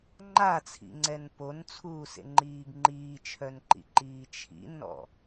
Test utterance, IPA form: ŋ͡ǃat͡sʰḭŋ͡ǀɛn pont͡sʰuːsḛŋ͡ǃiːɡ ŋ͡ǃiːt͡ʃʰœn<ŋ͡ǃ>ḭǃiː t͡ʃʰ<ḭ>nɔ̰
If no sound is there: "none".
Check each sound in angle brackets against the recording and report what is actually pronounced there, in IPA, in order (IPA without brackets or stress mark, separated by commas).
ǃ, ḭ